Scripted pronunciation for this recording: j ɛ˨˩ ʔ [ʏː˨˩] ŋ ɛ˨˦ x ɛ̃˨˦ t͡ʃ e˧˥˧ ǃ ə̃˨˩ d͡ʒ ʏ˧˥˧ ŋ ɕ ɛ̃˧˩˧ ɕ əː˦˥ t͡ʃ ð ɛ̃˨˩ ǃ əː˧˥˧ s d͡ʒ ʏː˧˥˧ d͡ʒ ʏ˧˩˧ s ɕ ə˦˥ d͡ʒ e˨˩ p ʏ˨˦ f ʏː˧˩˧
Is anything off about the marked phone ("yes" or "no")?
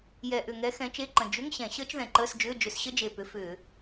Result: yes